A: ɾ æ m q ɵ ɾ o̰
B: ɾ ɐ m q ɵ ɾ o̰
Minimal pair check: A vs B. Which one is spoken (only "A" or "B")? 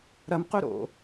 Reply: B